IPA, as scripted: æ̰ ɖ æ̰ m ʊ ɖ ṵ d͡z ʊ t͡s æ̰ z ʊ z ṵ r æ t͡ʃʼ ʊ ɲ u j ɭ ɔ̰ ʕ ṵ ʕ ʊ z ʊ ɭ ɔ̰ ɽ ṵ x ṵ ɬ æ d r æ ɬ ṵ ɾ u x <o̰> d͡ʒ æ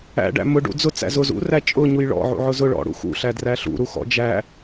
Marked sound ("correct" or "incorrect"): incorrect